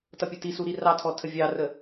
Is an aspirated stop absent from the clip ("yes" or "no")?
no